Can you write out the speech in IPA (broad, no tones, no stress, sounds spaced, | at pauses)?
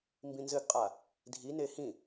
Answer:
m b ĩ n z ɘ ɡ qʼ a | dʱ i n e h ĩ